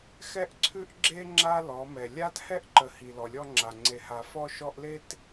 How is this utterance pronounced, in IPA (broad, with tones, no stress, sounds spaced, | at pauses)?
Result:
x ɛ˦ ʔ ǀʰ ʉ˦ ʔ ɡ͡ǁ e˦ ŋ͡ǁ a˦ l ɔ˨˦ m ɛ˨ lʲ a˦ t h ɛ˦ ʔ ǃ ə˨ h i˨ l ɔ˨ lʲ ɔ˦ ŋ͡ǁ a˨ ŋ͡ǀ e˨ h a˨ f ɔ˦ ʃ ɔ˦ ʔ l e˦ t